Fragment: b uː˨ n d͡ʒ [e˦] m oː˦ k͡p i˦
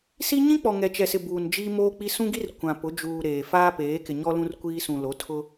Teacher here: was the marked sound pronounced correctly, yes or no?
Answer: no